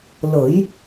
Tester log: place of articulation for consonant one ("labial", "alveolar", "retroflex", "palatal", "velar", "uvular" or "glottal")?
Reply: alveolar